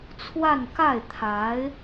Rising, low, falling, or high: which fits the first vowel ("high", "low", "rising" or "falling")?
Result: falling